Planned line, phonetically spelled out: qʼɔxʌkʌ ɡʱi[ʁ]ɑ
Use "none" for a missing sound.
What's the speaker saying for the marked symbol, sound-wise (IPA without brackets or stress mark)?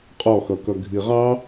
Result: ʁ